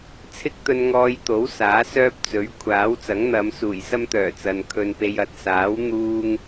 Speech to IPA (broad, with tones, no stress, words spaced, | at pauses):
t͡sʰɪ˥k̚t̪ɵ˧nŋɔː˧jt̪o˨˥w saː˨˥sœː˥p̚ t͡sɵ˨˥ɥ kʷʰaː˨˥wt͡sɐ˨˥ŋn̪ɐ˨˧m suː˨˩jsɐ˥mt̪œː˨˩t͡sɐ˨n kʰɵ˧npe˧jɐ˨˥t̚ saː˨˥w n̪uː˥ŋ